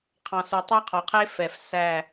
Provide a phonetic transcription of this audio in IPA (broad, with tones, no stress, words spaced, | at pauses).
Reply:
qʰɑ̃˨sø˨ tˤɑ˦qʰɔ˨qʰe˦ fɛ˨f sæ˦˨